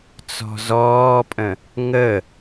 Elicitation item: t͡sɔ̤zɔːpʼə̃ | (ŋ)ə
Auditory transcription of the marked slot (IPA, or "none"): ŋ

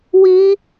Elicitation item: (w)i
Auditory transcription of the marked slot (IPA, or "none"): w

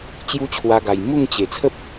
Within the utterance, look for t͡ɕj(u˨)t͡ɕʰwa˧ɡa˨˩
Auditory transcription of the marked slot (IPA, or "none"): u˦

